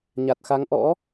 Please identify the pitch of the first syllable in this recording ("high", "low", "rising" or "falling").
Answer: low